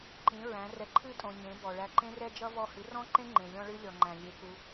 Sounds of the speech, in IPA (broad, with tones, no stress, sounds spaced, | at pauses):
ǃ ĩ˨˦ ɹ æ̃˨˦ r ɛ˧ ǃʰ ɨ˦˨ tʼ õ˨ ɲ ẽ˨˦ b ɔ˨ ɭ æ˧ ǃ ẽ˦ r ɛ˦ d͡ʒ ʌ˦ v ɔ˦˨ h ɨ˨˦ r ɔ̃˦ ǃ ẽ˦ ŋ͡ǃ ẽ˨ lʲ ɔ̃˦ ɭ ɨ˦ lʲ ɔ˨ ŋ͡ǃ æ̃˨ lʲ e˧ k u˧